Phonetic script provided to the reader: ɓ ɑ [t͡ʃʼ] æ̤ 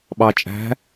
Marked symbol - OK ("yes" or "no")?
yes